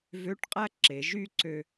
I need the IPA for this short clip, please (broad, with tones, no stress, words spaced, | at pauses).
vø˧˥˧ʈqʼæ˥˧ ǁe˩˧ʒy˥˧ ǀø˧